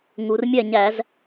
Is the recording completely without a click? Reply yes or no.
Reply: yes